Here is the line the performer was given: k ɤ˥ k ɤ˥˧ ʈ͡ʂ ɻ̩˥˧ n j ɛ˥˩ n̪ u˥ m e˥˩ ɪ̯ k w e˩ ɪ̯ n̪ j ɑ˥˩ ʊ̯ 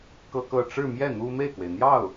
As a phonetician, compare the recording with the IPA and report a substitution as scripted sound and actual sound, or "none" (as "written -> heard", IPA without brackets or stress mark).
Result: n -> m